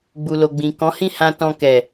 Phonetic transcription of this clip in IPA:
ɡ͡bu˨lo˨ɡ͡bĩ˨ kɔ̃˨˦hĩ˦˨hã˧ tɔ̃˧kɛ˨

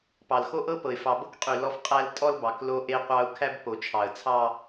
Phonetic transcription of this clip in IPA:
pɑ˨lxo˦ʔɤ˦pɤ˨ɪ̯ fɑ˨bɤ˦kqʼy˨ lɔ˦fqʼæ˦l tʼɔ˦lbɑ˨k lo˦ʔe˦qʷɑ˦ʊ̯ kʰæ˦bpo˨t͡ʃʰɑ˨ə̯t͡sʰɑ˦

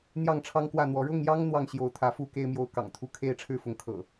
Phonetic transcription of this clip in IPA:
n̪jɑ˥˨ŋʈ͡ʂʰɑ˦ŋkwä˥˨n̪wɔ˨˦ ɻʊ˥˨ŋjɑ˦ŋ n̪wɑ˥˨ŋɕjo˨˦ʊ̯t̪ʰä˨˦fu˥˨ ke˦ɪ̯mjo˦ʊ̯ kɑ̰˨˩ŋt̪ʰu˨˦kʰe˥˨ɪ̯ ʈ͡ʂʰɻ̩˥˨fʊ˨˦ŋkʰɤ̰˨˩

